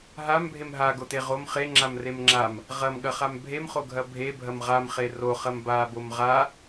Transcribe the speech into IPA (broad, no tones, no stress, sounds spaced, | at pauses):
ɦ a m bʱ e m ɦ a ɡ o t e ʁ o m χ e ŋ͡ǁ a m r e m ŋ͡ǁ a m | ʁ ɐ m ɠ ɐ χ a m bʱ e m χ o ɡʱ ɐ bʱ e bʱ ɐ m ʁ a m χ e r o χ ɐ m b a b o m ʁ a